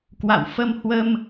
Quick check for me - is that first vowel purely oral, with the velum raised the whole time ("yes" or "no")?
yes